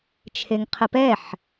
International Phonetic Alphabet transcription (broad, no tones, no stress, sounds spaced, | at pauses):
t͡ʃʰ e ŋ qʰ ə p ɛ ħ